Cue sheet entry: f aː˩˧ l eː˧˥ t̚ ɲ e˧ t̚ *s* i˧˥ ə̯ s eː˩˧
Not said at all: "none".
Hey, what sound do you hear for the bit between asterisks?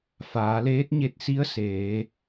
s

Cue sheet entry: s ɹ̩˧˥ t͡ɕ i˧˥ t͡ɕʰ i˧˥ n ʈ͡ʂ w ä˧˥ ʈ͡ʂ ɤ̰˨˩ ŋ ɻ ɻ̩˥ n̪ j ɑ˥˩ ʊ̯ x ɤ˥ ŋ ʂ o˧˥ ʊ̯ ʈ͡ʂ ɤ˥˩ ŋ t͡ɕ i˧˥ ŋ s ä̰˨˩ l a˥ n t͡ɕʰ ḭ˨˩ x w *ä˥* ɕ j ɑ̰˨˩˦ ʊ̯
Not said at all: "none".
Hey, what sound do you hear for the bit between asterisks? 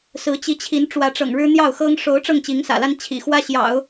ä˥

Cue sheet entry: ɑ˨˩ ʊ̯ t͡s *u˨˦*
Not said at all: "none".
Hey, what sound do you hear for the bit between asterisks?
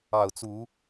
u˨˦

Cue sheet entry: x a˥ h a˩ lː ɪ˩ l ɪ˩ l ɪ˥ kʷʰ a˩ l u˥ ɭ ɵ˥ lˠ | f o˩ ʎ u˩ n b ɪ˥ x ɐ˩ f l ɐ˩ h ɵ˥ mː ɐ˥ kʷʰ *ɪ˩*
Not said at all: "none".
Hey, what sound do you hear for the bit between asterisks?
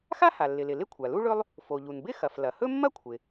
ɪ˩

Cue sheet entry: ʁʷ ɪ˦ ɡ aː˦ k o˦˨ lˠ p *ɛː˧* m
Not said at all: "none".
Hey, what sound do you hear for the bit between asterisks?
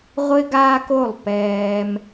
ɛː˧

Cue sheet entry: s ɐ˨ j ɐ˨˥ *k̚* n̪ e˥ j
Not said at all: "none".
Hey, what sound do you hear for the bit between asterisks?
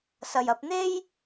p̚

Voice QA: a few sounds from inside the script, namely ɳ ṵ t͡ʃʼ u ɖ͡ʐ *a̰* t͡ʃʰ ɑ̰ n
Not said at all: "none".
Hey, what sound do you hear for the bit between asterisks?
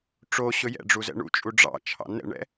ɑ̰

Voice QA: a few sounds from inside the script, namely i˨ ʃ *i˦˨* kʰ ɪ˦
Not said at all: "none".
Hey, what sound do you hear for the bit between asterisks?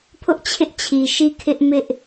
i˦˨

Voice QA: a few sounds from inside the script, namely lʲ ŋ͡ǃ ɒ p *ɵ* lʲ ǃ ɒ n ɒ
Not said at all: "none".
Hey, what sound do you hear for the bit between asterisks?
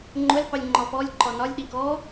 ɔ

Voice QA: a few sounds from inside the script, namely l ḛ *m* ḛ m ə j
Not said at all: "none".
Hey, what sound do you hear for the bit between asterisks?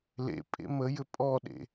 pʼ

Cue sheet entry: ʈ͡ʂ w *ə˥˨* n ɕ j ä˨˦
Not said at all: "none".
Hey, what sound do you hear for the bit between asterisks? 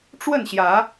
ə˥˨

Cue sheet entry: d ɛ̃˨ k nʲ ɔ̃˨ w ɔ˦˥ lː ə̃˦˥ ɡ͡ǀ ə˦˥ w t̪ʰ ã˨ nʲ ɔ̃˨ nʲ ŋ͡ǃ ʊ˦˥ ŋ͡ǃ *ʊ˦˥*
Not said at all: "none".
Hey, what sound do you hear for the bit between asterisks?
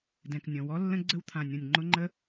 ə˦˥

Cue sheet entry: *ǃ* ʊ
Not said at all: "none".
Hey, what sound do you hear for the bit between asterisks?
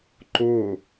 ǃ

